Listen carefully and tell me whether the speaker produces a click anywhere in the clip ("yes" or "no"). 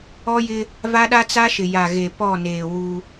no